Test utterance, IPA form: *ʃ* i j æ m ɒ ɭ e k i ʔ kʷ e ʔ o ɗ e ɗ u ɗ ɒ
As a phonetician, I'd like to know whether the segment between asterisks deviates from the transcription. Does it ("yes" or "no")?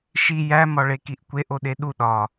no